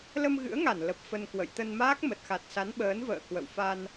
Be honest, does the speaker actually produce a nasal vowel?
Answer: no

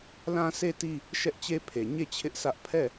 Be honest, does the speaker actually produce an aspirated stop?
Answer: yes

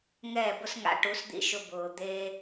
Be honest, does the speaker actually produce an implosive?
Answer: no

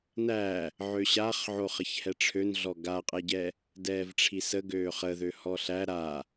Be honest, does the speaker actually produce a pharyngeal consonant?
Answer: yes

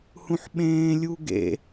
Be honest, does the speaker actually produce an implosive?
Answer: yes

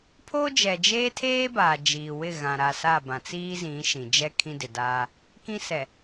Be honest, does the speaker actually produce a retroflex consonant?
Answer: no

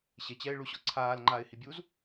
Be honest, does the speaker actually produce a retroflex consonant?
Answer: yes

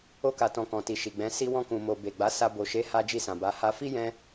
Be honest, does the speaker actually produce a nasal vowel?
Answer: yes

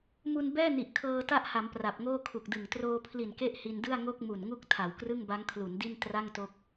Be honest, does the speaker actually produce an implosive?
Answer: no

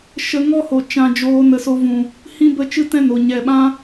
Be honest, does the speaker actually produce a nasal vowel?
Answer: yes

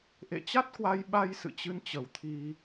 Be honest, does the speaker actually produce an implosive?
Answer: yes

